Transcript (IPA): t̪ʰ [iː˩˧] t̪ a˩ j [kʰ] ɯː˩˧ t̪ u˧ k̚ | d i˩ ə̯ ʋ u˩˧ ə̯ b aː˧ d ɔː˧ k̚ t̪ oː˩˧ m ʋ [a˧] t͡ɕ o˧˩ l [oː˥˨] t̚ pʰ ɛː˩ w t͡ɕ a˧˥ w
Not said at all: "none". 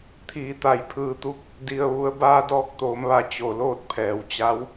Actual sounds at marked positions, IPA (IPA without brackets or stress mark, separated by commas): iː˩˧, pʰ, a˧˩, oː˥˨